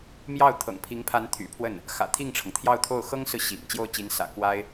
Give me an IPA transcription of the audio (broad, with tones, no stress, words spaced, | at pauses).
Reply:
mjɑ˥˩ʊ̯t̪ʰɤ̰˨˩ŋpʰi˧˥ŋpʰa˧˥n t̪ʰy̰˨˩pʰwə˥˩n | xä̰˨˩t̪ʰi˥˩ŋʈ͡ʂʰɤ˩ŋ t̪ʰjɑ˥˧ʊ̯t̪ʰo˥˩ʊ̯ xɤ˥ŋsɹ̩˨ ɕḭ˨˩ŋ t͡ɕjo˥˩ʊ̯t͡ɕi˧˥n sä̰˨˩kwa˥ɪ̯